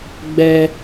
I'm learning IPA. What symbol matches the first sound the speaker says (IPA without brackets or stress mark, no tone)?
ɡ͡b